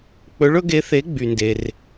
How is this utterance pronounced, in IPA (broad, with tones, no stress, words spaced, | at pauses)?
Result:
k͡pɵ˨˦ɭɵ˨˦ɡe˨˦θe˨˦ ɡ͡by˩nde˩r